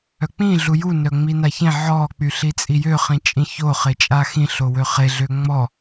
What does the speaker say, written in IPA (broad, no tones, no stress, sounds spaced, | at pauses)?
œ k͡p ĩ ɮ u j u n œ ŋ͡m i n a ç ẽ ʕ ɔ k͡p y ɬ i t͡sʼ i j ø χ ĩ t͡ʃʼ ĩ ç o χ e t͡ʃʼ a x ĩ ɬ o w ø χ e ɮ ø ŋ͡m ɔ